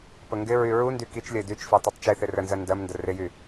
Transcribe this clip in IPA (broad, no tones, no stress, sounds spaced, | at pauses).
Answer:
p ə ŋ ɡ ɪ ɹ y ɹ u n d y k i t͡ʃ lʲ ə ɪ̯ d y t͡ʃ f i tˤ u tˤ t͡ʃ i θ ɪ r ə n z ɜ n d ɜ m n d ə r ɪ j y